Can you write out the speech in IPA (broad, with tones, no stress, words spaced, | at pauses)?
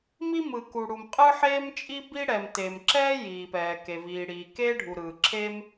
mi˥mɯ˩ ku˩ɽu˩m qʼɯ˥ħeː˥mt͡ʃʼi˥bi˥ ɽɛ˩mte˩mǁɛː˥ jiː˩pɛː˩ke˩ viː˩ɽiː˩keː˥ ɖʱu˩ɾɯː˩ǁʰeː˥m